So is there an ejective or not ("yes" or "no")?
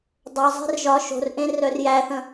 no